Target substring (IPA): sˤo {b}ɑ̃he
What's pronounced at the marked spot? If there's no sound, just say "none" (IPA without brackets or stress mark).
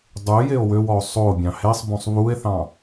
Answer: bʲ